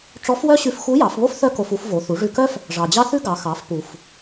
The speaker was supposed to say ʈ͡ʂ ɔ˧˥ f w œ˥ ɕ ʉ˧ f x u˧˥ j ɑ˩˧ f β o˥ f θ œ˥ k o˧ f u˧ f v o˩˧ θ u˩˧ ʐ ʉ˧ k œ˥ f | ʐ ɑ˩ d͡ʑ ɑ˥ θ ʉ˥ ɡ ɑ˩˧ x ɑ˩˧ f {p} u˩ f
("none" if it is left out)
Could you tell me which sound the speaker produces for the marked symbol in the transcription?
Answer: p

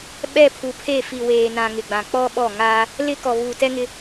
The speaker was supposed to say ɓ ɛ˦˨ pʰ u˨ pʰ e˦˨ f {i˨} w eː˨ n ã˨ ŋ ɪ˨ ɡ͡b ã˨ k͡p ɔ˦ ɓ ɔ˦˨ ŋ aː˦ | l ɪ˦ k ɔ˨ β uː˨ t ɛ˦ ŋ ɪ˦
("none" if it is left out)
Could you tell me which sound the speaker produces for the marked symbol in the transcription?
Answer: i˨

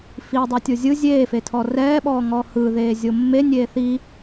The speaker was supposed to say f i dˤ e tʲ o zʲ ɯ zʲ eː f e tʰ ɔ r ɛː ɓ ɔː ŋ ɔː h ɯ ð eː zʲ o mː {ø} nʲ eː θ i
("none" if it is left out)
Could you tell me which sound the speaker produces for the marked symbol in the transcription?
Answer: e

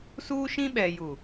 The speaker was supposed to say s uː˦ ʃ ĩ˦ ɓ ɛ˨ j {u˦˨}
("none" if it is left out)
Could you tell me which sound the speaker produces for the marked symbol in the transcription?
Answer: u˨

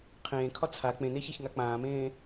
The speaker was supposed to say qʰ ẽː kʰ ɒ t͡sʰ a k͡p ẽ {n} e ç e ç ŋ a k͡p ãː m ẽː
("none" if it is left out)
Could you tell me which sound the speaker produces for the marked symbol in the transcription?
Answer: n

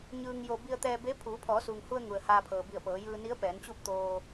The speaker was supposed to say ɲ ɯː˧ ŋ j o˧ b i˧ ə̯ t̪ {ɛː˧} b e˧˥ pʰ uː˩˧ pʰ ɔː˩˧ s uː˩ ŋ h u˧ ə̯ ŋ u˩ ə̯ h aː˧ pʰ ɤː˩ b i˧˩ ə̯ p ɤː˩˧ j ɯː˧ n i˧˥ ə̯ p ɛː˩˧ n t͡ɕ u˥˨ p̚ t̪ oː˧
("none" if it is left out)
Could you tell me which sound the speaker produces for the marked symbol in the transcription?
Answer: ɛː˧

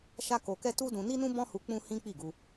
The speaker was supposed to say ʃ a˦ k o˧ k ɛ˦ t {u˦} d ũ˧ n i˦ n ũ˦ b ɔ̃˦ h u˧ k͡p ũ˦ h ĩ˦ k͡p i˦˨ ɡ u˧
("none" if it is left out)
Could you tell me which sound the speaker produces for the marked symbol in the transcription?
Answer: u˦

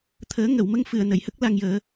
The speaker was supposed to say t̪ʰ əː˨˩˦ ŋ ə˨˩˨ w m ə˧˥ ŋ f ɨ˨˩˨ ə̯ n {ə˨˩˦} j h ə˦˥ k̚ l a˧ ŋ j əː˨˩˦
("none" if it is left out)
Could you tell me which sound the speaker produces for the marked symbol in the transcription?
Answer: ə˨˩˨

